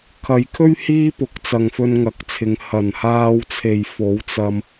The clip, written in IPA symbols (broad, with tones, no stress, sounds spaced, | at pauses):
kʰ ɐ˨˧ j kʰ ɵ˥ ɥ h iː˥ p ʊ˨˥ k̚ t͡s ɐ˨ ŋ f ɵ˧ n ŋ ɐ˨ k̚ t͡sʰ ɪ˨˧ ŋ h ɐ˨˩ n h aː˧ w t͡sʰ e˨ j f o˨˥ w t͡s ɐ˧ m